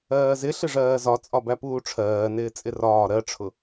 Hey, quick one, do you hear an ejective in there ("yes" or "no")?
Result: yes